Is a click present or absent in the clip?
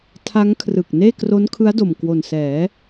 absent